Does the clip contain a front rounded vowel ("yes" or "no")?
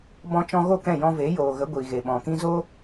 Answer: no